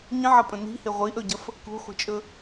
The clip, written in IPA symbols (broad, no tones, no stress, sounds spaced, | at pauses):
ɲ ə̃ ʕ ɐ pʼ ə̃ n i̤ h ɪ ʁʷ i ʔ ɵ ɟ ɐ f | k ṳ χʷ i̤ t͡ʃʼ ɵ